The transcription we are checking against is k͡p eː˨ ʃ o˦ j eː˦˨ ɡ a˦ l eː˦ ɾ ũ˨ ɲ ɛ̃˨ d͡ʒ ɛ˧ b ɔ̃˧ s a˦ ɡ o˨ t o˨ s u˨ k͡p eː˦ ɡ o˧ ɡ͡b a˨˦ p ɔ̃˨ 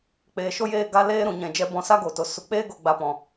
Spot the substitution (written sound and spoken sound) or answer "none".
none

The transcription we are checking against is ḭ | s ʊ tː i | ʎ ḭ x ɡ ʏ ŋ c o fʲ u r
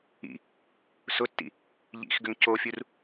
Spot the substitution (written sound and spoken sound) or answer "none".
i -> ḭ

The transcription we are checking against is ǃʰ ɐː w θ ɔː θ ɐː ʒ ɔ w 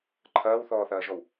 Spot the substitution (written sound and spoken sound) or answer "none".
none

